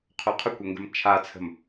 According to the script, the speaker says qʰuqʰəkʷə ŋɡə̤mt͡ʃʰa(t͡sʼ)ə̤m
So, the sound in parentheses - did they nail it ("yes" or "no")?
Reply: no